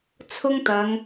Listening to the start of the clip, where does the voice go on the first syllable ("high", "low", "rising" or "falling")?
high